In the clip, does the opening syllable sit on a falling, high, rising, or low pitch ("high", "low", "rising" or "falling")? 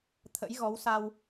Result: rising